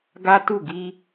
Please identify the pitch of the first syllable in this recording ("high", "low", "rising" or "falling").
high